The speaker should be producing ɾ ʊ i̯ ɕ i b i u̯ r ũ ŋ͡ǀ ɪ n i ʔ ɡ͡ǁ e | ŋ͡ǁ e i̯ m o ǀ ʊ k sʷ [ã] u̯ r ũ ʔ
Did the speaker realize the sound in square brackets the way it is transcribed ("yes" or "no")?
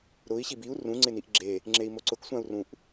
yes